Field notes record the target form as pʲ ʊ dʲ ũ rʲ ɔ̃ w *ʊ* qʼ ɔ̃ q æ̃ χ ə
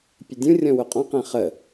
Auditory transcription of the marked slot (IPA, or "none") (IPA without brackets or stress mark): ʊ